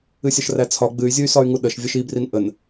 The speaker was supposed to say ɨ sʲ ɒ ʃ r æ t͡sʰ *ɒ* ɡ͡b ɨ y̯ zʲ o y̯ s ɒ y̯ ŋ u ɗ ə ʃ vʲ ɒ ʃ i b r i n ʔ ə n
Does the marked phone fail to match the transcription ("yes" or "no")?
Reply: no